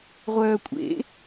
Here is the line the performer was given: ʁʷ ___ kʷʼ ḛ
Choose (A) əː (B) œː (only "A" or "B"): B